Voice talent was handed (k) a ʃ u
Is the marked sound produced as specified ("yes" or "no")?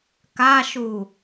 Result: yes